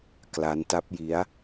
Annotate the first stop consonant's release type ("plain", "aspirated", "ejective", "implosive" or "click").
plain